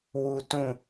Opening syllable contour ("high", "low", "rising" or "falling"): high